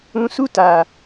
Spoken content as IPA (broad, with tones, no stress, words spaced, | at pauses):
ũ˧su˦ta˨